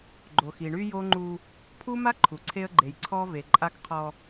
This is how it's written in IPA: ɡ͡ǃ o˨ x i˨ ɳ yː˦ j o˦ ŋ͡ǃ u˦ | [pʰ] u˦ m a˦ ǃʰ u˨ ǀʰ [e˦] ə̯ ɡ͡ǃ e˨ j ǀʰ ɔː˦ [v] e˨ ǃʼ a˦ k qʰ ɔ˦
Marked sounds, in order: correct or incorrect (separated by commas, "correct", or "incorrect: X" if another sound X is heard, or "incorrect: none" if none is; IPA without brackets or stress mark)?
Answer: correct, correct, correct